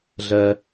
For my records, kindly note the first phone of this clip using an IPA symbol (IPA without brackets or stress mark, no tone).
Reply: ɮ